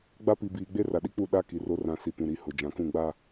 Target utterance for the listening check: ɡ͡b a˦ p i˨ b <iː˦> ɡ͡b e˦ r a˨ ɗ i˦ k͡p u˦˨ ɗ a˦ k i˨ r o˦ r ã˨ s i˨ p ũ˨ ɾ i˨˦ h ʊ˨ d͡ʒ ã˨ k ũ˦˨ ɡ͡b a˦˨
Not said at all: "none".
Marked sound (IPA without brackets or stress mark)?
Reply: iː˨